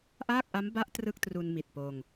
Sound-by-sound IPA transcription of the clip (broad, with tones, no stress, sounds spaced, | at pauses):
ʔ aː˥˩ k̚ ʔ a˦˥ m b a˦˥ ʔ t r ɯ˥˩ k̚ t r u˧ n m i˨˩ t̚ p oː˧ ŋ